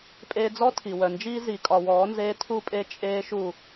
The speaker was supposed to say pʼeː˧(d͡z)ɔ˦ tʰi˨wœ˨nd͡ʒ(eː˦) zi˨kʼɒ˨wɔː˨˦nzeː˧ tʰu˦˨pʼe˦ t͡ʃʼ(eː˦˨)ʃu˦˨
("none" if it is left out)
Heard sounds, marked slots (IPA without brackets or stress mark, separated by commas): d͡z, iː˦, eː˦